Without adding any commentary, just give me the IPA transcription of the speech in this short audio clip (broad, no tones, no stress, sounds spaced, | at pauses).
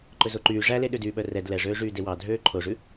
ǃ ɵ z o ǃ yː ʐ æ l e ɗ ø d yː ɓ œ r ɛ d l ɛ ʐ øː ʐ yː d e w ɑ dʱ øː ǃʰ o ʐ ʉ